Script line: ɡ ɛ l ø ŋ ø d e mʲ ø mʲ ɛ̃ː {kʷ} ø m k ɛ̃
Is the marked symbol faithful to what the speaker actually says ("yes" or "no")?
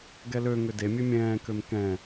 no